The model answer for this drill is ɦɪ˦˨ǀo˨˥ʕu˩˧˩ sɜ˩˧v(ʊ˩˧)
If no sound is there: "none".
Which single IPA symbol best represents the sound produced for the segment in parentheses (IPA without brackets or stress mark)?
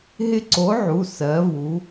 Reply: u˩˧